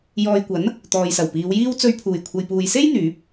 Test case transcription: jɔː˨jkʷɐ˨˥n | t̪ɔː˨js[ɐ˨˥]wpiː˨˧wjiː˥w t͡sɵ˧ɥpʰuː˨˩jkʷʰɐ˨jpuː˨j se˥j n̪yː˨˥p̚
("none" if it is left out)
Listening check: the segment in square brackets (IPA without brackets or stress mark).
ɐ˨˩